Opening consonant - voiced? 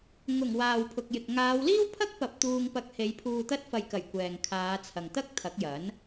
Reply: yes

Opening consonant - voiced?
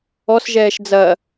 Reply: no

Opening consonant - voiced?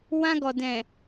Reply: yes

